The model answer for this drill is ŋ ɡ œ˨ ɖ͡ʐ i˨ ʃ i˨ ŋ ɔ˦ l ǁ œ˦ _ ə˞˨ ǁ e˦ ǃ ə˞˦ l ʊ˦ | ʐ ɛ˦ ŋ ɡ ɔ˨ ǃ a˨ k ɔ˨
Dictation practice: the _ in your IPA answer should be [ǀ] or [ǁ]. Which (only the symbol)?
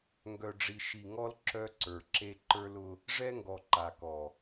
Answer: ǀ